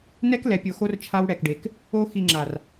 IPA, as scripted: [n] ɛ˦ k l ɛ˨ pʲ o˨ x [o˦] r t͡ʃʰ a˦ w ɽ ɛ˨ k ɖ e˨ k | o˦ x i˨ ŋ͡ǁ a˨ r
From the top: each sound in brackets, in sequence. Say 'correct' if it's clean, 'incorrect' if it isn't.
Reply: correct, correct

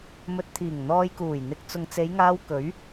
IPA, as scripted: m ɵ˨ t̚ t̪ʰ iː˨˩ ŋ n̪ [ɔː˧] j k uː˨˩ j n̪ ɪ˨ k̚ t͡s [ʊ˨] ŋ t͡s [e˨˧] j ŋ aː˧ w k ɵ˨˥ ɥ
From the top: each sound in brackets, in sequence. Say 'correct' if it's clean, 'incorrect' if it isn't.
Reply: correct, correct, correct

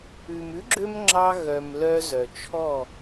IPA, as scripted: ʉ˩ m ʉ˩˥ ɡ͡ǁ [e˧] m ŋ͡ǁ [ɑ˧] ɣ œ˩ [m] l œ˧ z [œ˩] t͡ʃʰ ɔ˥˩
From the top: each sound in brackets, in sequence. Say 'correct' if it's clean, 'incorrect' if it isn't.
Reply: incorrect: ø˧, correct, correct, correct

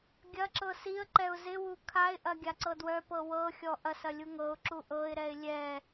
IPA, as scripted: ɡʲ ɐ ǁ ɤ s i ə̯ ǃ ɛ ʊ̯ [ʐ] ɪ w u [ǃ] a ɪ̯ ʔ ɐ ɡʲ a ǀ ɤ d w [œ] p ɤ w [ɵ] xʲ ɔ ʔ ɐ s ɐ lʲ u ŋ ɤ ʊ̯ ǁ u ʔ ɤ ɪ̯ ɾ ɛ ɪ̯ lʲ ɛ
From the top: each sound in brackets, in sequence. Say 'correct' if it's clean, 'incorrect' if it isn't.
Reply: incorrect: z, incorrect: kʰ, correct, incorrect: ɤ

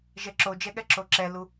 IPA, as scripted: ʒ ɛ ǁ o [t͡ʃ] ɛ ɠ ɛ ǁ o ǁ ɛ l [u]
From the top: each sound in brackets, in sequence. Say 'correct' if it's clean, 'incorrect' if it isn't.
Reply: incorrect: d͡ʒ, correct

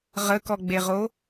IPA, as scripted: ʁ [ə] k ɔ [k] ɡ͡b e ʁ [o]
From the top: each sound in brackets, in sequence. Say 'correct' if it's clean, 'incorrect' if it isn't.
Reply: correct, incorrect: none, correct

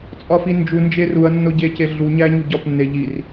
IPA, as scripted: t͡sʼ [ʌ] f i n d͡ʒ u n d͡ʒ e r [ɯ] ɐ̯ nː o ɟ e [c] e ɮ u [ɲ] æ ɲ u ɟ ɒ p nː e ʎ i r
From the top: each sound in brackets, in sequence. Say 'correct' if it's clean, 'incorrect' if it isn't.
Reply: incorrect: ɒ, incorrect: u, correct, correct

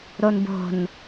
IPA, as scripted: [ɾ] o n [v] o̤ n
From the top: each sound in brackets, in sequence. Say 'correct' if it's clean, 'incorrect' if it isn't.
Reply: correct, incorrect: b

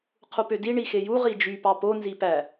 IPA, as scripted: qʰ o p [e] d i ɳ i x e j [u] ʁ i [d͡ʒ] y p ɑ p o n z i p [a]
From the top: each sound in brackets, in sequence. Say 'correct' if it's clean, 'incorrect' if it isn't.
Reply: incorrect: ø, correct, correct, incorrect: æ

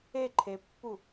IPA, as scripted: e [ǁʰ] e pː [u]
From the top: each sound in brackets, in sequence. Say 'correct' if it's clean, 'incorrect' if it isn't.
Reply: incorrect: ǃʰ, correct

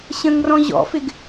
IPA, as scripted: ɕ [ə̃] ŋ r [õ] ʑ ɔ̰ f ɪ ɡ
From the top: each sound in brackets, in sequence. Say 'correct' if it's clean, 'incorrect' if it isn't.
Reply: correct, incorrect: ɔ̃

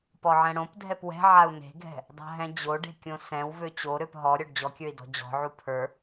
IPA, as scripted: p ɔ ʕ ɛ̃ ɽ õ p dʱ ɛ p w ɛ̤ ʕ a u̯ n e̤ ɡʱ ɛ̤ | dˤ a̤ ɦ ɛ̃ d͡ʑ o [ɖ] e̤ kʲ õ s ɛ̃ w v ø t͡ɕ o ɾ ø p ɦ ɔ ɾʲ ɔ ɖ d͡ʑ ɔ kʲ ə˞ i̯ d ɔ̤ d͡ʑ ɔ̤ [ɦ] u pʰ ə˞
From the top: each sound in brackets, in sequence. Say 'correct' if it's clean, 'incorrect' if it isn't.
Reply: correct, incorrect: ʕ

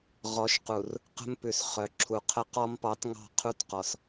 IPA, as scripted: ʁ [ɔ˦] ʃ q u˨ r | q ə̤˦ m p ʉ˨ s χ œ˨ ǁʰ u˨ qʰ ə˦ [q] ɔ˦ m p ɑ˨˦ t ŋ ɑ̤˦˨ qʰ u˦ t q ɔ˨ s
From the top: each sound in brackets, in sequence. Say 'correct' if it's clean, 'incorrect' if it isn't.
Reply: incorrect: ɔ˨˦, correct

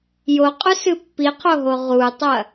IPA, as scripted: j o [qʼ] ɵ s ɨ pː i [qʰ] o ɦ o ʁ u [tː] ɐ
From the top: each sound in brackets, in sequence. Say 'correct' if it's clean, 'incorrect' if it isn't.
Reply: correct, correct, incorrect: tˤ

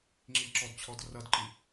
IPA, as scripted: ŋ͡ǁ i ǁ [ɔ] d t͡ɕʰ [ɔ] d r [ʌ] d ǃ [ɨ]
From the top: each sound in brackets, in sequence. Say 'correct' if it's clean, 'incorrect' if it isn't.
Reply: correct, correct, correct, incorrect: i

